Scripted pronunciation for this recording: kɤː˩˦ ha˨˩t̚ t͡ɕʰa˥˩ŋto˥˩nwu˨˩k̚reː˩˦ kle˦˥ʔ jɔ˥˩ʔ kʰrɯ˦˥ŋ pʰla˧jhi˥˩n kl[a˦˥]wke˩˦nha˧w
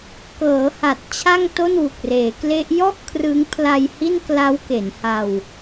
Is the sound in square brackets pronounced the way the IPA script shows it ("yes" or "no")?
yes